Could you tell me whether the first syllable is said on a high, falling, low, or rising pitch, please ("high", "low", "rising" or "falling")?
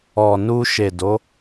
low